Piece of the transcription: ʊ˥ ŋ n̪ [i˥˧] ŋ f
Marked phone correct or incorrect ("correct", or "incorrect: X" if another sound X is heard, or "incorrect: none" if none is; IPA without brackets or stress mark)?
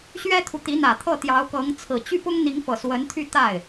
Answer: incorrect: i˧˥